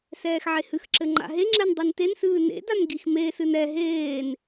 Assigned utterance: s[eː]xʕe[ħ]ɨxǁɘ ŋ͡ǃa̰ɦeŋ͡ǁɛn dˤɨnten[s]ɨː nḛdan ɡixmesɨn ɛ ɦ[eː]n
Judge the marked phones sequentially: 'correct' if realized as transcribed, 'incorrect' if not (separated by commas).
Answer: incorrect, incorrect, correct, correct